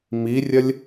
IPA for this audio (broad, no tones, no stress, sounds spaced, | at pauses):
m i rʲ ɐ lʲ